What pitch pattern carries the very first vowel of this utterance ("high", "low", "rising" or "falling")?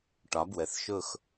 rising